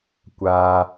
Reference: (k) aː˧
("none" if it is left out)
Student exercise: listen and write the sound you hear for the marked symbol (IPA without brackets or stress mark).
kʷ